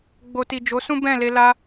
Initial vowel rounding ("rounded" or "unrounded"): rounded